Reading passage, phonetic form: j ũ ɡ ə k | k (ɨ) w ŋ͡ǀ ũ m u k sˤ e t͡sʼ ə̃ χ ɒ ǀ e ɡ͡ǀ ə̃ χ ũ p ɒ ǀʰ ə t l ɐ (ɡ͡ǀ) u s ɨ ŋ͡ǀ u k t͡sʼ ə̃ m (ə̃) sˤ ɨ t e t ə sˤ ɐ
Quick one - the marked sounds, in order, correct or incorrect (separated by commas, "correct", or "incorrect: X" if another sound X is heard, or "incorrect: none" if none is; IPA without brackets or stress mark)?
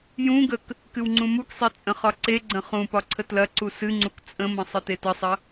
correct, incorrect: ǀ, correct